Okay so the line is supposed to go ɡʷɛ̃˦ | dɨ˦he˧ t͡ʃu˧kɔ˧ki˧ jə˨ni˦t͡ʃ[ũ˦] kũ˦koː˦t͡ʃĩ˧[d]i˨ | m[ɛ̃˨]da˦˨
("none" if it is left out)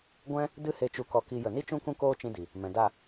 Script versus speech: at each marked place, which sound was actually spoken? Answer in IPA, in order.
ũ˦, d, ɛ̃˨

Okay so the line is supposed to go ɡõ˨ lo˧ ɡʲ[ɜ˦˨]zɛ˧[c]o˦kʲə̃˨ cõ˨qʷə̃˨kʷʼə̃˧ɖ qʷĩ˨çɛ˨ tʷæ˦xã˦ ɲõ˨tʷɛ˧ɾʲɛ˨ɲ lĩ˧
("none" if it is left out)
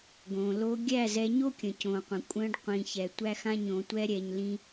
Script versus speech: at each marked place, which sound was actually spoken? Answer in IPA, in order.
æ˦˨, ɲ

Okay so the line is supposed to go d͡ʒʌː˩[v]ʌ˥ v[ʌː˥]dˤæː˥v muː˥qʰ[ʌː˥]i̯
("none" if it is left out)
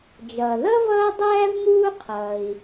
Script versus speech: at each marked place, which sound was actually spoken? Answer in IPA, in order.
ð, ʌː˥, ʌː˩

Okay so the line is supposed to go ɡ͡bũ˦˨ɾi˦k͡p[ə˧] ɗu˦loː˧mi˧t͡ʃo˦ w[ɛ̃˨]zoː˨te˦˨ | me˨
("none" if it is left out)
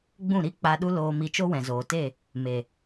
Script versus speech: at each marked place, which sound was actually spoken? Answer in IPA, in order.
a˧, ɛ̃˨

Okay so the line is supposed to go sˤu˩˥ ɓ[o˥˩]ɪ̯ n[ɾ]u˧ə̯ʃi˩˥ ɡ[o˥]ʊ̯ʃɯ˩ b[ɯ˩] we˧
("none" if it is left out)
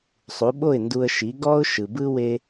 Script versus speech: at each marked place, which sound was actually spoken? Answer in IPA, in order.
o˥˩, d, ɔ˥, ɯ˥

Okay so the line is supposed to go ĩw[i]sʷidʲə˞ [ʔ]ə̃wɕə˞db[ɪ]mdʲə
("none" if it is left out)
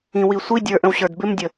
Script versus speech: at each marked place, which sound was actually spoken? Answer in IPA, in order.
i, ʔ, ɪ

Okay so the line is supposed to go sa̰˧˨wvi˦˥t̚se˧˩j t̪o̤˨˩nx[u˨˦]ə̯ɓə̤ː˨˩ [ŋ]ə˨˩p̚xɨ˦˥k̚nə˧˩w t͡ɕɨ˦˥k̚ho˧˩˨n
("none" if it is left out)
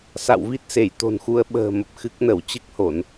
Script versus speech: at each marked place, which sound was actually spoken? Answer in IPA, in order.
u˨˦, m

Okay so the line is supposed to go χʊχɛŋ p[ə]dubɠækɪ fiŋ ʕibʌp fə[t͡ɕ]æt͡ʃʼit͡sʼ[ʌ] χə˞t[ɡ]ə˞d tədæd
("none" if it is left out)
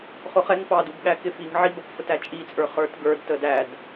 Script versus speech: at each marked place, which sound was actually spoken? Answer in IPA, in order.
ɑ, t, ə˞, ɡ

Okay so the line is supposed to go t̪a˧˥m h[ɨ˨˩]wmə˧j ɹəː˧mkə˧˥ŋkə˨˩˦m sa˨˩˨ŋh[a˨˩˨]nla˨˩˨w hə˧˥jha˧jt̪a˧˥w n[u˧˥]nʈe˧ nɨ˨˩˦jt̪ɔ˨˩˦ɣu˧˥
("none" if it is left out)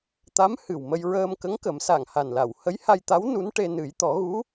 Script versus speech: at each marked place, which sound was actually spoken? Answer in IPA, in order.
ɨ˨˩, a˨˩, u˧˥

